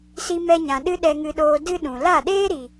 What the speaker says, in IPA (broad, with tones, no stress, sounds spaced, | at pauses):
s i˧ m ɛ˧ ɲ ã˨ ɗ ɨ˦ ɗ ɛ˧ ŋ ɨ˧ ɗ oː˧ d ɨ˦ ɗ ũ˨ l a˦˨ ɗ eː˦ ɾ i˨